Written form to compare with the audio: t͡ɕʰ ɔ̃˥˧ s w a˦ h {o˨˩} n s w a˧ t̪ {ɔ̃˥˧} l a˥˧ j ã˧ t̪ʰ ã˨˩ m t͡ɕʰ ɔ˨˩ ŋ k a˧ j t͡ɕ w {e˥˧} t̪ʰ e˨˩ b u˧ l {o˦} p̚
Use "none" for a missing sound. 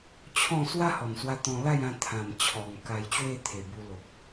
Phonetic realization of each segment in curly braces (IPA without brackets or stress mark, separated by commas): ɔ˨˩, ɔ̃˧, e˥˧, o˨